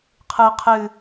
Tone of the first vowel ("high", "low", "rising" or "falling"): low